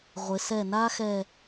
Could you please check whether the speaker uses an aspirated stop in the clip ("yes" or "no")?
no